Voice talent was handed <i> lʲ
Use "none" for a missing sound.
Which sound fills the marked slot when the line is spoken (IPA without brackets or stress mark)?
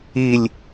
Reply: i